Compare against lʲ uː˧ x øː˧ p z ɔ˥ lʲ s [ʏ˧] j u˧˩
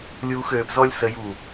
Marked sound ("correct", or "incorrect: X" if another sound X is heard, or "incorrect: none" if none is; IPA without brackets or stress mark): incorrect: ə˧